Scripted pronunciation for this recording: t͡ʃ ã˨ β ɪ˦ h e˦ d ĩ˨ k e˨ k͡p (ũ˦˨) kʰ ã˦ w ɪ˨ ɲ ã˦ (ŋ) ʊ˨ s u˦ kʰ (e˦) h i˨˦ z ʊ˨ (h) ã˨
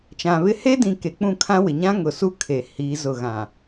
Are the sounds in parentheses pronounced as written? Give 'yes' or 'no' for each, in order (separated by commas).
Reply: yes, yes, no, no